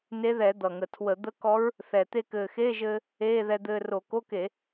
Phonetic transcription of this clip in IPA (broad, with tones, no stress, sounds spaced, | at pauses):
n e˧˥ ð ɛ˧˩˧ d̪ ʌ˨˩ ŋ ə˨˩ tʰ w ə˧˩˧ d̪ ə˧˥ k ɔ˧˥ ɹ | θ ɛ˨˩ t̪ e˧ k ɘː˨˩ x eː˧˥˧ ʒ ɘː˧ | eː˧˥˧ ð ɛ˧ d̪ ɘː˧ r o˧˩˧ k o˧˥˧ k e˧˩˧